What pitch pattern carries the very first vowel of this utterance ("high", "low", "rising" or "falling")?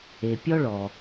low